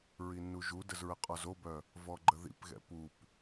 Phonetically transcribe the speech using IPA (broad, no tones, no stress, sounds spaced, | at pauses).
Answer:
ɹ i nː u ʒ u d ə z ɹ ə qʼ ɔ z o b œ | v ɔ ɡ͡ǃ ə ð ḭ p ɣ ɛ̰ p u p